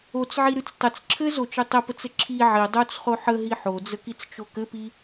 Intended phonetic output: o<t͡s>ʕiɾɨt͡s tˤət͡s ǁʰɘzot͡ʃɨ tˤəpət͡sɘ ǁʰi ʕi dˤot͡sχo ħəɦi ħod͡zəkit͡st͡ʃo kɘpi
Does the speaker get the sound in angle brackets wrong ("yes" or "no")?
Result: no